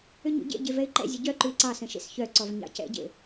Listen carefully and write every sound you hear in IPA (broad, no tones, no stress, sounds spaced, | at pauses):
ʏ ɲ ṵ ɟ ḛ ɟ e v ɛ ɪ̯ ǃ ɛ̰ zʲ ə ɟ œ ǃ ʉ ɪ̯ ǀ ɑ s ə̃ ʃ ḛ s ç œ ǀ ɔ v ɲ ɑ̰ c ɛ̰ ɟ ḛ